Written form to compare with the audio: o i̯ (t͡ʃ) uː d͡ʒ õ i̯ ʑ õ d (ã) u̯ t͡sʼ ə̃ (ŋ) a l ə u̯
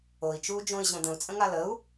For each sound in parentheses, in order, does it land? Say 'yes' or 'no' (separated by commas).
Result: yes, no, yes